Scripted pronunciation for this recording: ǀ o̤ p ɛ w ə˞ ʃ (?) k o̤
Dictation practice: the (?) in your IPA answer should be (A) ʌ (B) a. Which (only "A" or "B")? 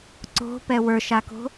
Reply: B